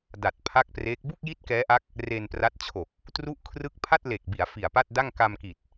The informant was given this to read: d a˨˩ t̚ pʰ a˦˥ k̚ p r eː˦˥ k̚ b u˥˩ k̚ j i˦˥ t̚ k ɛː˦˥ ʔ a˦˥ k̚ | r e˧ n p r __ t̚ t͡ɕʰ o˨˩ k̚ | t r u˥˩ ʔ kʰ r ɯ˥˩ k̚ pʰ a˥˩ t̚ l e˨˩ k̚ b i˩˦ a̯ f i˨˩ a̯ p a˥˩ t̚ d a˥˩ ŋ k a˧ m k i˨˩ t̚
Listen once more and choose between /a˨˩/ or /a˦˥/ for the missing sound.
a˦˥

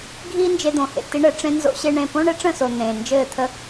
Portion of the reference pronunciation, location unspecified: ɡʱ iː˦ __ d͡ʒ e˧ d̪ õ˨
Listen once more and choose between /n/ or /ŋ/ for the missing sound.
n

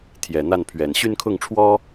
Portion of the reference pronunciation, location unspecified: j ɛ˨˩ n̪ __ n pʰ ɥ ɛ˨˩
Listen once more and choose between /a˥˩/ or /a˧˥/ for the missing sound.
a˥˩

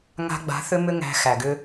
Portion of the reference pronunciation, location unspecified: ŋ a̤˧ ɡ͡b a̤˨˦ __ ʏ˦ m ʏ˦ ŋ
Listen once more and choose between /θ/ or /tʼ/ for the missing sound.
θ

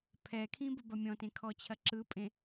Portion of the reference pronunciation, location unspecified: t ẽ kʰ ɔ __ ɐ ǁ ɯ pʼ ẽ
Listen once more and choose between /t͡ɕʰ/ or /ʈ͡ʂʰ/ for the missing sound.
t͡ɕʰ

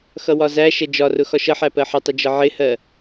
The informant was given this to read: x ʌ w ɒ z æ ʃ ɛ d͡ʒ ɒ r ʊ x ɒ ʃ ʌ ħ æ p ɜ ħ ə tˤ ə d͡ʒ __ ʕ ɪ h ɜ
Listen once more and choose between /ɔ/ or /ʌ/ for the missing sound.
ʌ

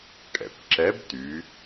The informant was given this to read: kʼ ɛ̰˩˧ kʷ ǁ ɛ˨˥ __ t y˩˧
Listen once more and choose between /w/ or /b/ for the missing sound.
b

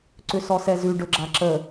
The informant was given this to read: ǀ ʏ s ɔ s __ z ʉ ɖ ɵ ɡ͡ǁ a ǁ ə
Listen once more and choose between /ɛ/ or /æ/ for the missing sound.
ɛ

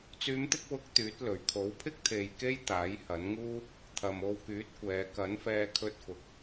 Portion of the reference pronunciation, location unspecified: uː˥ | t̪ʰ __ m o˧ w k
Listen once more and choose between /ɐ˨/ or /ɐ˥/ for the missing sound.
ɐ˨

